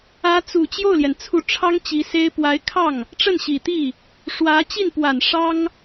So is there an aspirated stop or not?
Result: yes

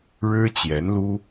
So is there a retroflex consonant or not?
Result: yes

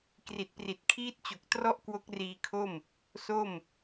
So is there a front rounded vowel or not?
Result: no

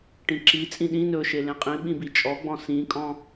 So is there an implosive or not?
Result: yes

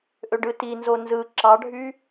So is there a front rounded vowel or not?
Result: yes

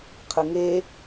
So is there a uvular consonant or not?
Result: yes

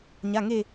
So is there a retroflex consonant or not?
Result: no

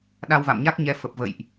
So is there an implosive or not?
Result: yes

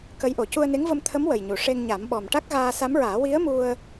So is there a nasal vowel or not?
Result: no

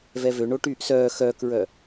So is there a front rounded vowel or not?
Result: yes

